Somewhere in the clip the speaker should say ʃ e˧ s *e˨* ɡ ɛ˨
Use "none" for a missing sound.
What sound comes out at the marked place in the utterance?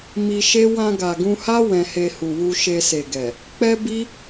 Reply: e˨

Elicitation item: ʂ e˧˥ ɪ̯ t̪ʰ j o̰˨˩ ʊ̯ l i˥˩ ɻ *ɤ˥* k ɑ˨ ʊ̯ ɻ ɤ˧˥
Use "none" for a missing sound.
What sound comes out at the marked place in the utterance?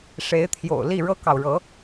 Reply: ɤ˥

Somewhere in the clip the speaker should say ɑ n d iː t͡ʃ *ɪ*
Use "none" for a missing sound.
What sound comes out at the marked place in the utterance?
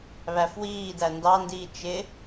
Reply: ɪ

